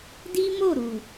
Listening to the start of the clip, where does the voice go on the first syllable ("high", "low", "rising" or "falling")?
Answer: high